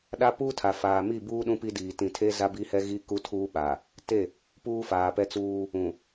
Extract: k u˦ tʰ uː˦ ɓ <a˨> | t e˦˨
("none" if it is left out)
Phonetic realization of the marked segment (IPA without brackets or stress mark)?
a˨